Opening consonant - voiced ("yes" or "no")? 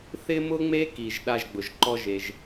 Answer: no